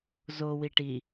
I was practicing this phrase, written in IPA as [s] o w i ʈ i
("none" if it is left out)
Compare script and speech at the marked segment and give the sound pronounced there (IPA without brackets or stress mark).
z